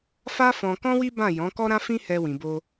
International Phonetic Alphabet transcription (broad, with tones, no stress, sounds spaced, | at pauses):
f a˦ f ɔ̃˧ k ɔ̃˦ w i˦ b ã˦˨ j ɔ̃˨˦ k ɔ˦ ɾ ã˦ f ĩ˦ h ɛ˧ w ĩ˨ b o˧